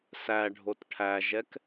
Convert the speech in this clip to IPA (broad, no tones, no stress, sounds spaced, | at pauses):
s æ ɖʱ o t ʈʰ æ ʒ ɛ k